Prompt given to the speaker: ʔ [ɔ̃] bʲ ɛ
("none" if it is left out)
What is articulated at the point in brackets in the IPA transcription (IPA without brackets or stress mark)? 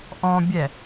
ɔ̃